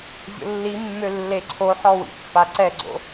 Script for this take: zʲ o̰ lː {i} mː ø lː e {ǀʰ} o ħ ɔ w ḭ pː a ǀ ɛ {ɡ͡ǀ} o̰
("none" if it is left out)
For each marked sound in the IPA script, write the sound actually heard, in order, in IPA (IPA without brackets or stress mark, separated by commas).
i, ǀʰ, ɡ͡ǀ